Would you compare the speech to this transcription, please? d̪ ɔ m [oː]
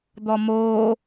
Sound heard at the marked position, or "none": oː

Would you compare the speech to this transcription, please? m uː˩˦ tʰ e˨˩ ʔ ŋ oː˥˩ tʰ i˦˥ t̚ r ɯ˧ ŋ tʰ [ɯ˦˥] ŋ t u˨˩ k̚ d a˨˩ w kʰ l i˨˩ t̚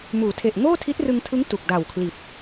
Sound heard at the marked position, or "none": ɯ˦˥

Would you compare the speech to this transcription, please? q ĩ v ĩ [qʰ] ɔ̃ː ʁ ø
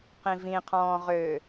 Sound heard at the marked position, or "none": qʰ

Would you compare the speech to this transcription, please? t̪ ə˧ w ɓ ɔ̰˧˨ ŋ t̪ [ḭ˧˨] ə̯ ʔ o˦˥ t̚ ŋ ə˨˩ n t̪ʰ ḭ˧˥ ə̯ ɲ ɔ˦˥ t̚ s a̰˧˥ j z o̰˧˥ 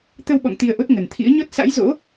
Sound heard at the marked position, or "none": i˧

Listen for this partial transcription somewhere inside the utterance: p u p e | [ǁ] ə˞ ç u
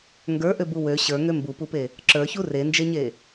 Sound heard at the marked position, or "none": ǁ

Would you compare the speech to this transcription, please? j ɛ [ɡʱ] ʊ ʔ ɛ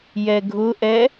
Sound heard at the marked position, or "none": ɡʱ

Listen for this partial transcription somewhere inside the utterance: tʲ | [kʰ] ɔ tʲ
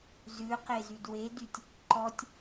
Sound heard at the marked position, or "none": ǃ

